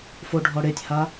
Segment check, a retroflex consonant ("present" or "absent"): present